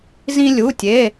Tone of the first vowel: high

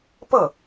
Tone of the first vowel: falling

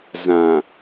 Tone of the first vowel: low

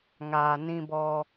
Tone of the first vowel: low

